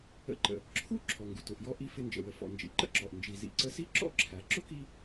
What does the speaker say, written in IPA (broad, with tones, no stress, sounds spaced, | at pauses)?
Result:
ə̰˧ ǃ ə̰˩ | ǁʰ u˥ ǁʰ ɔ˩ ŋ ɡ u˩ t ʊ˩ ʔ j ɔ˧ ʔ i˧ f ɪ˧ n d͡ʒ ə̰˩ w ə˩ f ɔ̰˩ n d͡ʒ ḭ˩ ǃ ə̰˥ ǁ ɔ˩ ʔ n d͡ʒ i˩ z ḭ˩ ǀ ə˧ s i˥ ǁ ɔ̰˥ ǁʰ æ˩ ǁ ʊ˥ k i˧